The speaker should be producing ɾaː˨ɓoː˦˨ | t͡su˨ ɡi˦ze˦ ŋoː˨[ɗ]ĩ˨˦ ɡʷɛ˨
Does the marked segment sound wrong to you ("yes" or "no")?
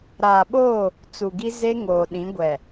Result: no